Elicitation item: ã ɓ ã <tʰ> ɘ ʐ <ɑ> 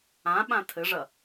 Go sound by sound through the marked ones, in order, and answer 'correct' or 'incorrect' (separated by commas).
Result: correct, incorrect